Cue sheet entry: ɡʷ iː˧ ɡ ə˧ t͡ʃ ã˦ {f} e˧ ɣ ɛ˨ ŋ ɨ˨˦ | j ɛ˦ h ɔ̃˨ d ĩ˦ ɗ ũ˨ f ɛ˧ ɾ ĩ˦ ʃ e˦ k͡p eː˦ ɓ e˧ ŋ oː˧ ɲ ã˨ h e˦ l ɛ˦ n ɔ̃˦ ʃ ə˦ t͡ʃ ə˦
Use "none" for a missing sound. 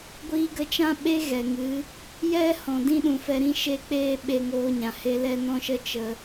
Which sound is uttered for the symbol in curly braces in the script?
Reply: ɓ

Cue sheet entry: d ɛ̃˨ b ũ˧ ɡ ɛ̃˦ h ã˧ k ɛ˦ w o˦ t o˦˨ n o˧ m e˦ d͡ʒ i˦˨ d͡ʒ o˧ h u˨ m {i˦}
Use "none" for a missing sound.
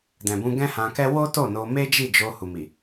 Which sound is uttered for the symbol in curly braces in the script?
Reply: i˨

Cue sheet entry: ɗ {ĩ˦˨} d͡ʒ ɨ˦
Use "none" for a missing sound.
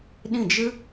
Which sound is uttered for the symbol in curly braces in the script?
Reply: ĩ˦˨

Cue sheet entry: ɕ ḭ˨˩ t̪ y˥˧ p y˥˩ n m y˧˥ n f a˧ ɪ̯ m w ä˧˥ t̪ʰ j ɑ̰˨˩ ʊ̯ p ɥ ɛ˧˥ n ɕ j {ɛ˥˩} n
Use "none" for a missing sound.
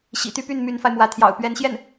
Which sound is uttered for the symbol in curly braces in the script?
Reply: ɛ˥˩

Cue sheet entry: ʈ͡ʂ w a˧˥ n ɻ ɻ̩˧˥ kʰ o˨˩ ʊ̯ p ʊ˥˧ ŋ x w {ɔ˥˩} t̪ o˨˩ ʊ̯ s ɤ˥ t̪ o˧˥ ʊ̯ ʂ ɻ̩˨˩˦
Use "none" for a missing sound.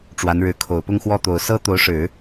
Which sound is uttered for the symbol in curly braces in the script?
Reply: ɔ˥˩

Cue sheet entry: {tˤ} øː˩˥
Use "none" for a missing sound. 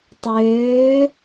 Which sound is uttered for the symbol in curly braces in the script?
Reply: tˤ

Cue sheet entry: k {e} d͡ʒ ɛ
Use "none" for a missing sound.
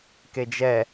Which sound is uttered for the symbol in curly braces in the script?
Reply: e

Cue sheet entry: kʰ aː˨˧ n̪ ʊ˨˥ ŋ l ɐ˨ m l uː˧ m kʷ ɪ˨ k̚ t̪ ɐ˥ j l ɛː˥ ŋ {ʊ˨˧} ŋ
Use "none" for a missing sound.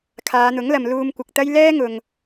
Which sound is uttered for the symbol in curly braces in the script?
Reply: ʊ˨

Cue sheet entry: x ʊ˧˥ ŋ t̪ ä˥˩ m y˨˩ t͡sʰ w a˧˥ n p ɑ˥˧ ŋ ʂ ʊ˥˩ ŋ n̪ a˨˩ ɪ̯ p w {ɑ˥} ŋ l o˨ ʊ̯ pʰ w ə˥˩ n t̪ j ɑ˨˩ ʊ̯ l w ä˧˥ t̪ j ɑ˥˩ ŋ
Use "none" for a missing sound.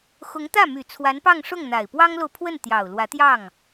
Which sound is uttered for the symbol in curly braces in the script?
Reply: ɑ˥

